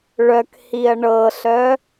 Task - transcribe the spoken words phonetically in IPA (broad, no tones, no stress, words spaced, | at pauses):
ɭœkhiɐ̯ ɳɤɬœ